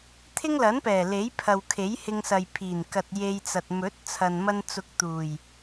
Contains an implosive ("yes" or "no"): no